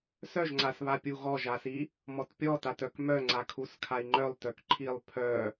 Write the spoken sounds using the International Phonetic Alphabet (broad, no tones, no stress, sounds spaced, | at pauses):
s œ ʒ ŋ͡ǀ a s β a pʲ u ɣ ɔ ʒ a s i | m ɔ t pʲ ɔ t a t œ k m œ ŋ͡ǀ a kʰ u s kʰ a i̯ ŋ͡ǃ œ lˠ t œ k ǃʰ i lˠ pʰ œ